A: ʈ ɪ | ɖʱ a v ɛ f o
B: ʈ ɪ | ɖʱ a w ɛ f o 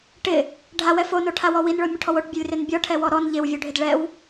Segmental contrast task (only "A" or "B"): B